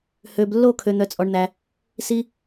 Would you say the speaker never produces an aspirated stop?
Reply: no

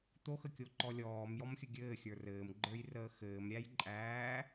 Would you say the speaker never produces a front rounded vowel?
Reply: yes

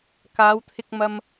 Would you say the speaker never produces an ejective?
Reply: yes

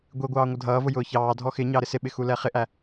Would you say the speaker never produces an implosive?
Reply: no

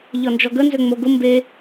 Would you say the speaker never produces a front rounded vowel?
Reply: no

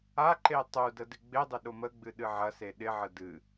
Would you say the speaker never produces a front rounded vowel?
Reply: yes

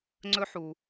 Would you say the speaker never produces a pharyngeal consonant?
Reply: no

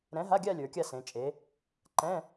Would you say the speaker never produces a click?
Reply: no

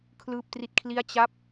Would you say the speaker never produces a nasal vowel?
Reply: yes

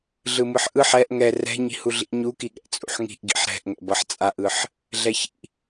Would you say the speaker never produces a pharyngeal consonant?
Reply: no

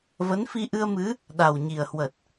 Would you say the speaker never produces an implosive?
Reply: no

